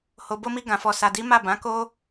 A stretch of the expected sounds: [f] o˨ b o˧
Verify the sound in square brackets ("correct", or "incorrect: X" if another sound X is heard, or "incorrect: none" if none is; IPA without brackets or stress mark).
incorrect: h